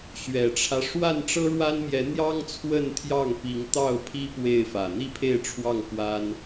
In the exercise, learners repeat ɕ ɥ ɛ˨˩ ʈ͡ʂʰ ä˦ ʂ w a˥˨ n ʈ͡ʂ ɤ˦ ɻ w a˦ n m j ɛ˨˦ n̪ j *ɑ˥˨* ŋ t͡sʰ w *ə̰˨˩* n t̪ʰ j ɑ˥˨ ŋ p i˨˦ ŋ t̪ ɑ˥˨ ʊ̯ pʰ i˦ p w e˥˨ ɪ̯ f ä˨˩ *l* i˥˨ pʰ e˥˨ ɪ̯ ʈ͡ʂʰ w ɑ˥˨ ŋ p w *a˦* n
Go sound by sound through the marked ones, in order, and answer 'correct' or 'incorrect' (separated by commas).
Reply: incorrect, incorrect, incorrect, correct